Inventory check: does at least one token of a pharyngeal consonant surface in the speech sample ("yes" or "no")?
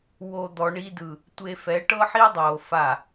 yes